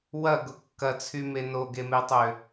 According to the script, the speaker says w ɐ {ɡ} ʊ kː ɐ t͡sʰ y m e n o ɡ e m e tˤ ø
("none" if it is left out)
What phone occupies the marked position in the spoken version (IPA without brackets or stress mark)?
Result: ɡ